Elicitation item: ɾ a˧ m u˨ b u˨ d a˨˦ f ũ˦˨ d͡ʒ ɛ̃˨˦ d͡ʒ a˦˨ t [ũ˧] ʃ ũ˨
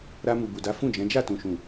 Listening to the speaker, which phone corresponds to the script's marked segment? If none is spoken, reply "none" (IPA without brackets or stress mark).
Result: ũ˨